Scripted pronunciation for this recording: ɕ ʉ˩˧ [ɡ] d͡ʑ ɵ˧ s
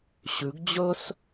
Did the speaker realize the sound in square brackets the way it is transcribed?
yes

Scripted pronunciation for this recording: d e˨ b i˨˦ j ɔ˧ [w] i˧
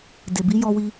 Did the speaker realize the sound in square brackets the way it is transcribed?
yes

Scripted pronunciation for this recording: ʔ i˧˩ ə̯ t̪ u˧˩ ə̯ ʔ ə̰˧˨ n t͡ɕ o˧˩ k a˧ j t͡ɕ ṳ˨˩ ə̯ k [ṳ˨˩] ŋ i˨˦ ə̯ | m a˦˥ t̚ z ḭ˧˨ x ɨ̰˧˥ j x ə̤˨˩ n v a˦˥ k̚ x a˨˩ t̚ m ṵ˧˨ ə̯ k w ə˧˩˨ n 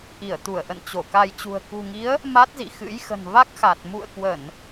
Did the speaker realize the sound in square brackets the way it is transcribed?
yes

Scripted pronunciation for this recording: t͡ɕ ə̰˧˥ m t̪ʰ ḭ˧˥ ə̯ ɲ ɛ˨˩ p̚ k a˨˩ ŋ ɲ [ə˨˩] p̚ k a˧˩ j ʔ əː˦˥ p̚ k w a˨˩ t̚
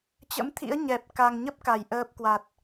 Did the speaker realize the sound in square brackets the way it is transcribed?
no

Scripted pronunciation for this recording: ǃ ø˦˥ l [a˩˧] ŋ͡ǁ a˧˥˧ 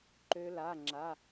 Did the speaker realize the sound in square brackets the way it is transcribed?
no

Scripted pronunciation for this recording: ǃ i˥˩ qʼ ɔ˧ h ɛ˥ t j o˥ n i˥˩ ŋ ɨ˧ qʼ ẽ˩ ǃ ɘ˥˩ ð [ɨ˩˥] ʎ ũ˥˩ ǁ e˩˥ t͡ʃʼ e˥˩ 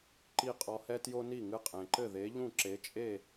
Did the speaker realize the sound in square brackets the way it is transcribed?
no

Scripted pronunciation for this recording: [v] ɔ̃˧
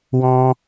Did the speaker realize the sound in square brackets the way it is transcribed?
no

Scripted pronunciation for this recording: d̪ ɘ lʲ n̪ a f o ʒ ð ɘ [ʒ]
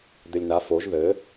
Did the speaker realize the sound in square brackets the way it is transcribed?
no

